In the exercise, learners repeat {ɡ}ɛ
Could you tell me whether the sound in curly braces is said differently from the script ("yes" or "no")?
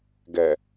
no